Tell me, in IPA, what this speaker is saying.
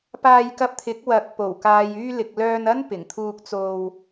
p aː˧ j k ɐ˧ p̚ t̪ʰ ɪ˨˥ k̚ w ɐ˨˥ k̚ p o˨˩ w k aː˨ j yː˧ l ɪ˨ k̚ l œː˧ n ɐ˥ n p ɪ˨˩ ŋ t̪ʰ uː˧ k̚ t͡s o˧ w

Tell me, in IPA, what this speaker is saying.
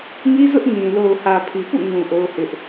ŋ i˦ z ʊ˦ ʔ ŋ ĩ˨ l o˨ ʊ̯ h ä˨ pʰ i˨ p ṵ˦˨ ŋ ũ˨ ʔ o˦ ʊ̯ h ɪ˦ ʔ

